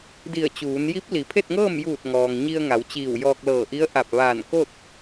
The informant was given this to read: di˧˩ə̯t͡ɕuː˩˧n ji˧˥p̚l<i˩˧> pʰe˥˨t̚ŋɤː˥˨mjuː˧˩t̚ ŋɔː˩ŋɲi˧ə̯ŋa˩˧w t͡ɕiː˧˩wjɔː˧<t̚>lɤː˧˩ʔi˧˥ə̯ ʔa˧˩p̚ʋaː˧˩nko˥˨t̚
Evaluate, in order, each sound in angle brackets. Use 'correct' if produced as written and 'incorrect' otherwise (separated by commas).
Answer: correct, incorrect